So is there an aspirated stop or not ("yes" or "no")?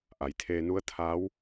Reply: yes